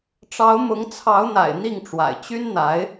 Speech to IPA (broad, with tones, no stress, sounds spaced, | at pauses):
ʈ͡ʂ ɑ˧˥ ʊ̯ m ʊ˧˥ ŋ t͡sʰ ɑ˧˥ ʊ̯ n̪ a̰˨˩ ɪ̯ n̪ i˥˩ ŋ ʈ͡ʂ w a̰˨˩ ɪ̯ t͡ɕ y˥ n n̪ a˧˥ ɪ̯